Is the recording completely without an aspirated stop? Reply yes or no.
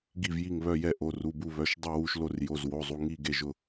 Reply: yes